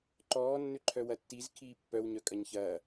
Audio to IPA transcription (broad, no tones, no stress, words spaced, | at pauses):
ǃɔː nːʏǃʰœwɐtːiz kʰiːpːœw ɲœkʼɐɲçɐː